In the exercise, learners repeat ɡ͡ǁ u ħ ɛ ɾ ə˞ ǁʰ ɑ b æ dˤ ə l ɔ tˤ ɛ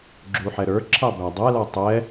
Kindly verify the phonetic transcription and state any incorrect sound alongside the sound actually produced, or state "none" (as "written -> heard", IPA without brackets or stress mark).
ə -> ɛ